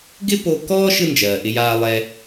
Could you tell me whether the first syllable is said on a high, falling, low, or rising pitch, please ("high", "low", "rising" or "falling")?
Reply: high